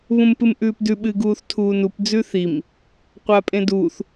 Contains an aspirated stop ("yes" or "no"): yes